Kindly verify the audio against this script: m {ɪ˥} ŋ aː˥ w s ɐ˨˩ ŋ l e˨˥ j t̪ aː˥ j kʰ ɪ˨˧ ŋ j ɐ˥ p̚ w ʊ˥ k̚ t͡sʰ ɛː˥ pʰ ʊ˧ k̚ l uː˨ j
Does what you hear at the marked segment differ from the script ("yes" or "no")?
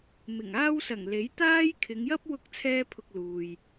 yes